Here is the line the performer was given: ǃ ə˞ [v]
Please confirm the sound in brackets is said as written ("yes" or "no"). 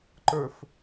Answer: no